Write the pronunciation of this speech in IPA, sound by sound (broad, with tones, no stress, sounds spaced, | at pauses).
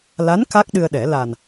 l a˧˥ n k a˦˥ k̚ ɗ ɨ˧ ə̯ ɗ ɛ˨˩˦ l a˨˩ n